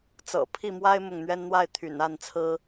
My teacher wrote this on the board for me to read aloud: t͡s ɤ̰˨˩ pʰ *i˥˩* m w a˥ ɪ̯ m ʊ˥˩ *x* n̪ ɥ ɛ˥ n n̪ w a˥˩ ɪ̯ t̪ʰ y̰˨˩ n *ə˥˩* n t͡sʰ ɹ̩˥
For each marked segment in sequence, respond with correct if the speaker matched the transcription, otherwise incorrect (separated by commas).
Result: correct, incorrect, incorrect